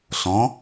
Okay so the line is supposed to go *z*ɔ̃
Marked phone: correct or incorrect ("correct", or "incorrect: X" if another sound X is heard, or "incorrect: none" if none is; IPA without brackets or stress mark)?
incorrect: ɬ